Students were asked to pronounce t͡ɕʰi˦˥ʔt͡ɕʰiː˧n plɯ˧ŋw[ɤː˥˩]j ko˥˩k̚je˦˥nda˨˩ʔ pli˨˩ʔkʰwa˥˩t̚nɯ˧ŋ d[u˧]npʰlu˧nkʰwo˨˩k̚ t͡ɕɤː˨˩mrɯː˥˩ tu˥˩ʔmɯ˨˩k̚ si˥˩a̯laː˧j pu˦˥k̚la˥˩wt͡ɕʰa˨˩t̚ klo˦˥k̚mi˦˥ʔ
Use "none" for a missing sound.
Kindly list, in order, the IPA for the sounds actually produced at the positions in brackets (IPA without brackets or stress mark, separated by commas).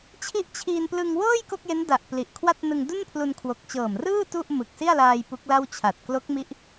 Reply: ɤː˥˩, u˥˩